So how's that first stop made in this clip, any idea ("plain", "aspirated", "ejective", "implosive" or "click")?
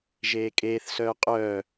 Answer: ejective